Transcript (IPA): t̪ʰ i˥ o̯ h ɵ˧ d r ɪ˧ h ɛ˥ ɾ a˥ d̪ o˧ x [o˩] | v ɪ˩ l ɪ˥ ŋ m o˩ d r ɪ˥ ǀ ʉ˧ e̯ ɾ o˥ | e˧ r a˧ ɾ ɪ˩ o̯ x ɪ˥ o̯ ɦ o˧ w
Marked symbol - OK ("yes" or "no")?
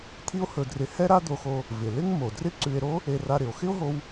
no